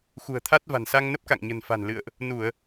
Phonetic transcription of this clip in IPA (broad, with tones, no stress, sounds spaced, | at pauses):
x ṳ˨˩ ə̯ t̪ʰ a˦˥ t̚ v a̤˨˩ n s a˧ ŋ n ə˦˥ p̚ k a̰˧˨ ŋ ɲ ə̤˨˩ n f a̤˨˩ n l ɨ̰˧˨ ə̯ ʔ | n u˧˩˨ ə̯